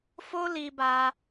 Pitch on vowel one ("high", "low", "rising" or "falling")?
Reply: high